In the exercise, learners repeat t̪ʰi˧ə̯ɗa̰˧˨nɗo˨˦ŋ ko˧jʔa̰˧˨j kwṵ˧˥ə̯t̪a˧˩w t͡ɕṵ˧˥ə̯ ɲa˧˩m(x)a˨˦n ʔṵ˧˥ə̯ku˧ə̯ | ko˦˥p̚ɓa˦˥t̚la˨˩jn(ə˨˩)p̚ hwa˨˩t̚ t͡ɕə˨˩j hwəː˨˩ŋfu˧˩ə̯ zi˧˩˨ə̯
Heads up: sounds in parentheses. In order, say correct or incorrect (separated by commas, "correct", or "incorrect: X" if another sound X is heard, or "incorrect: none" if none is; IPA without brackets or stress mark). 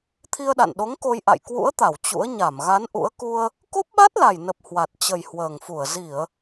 incorrect: ɣ, correct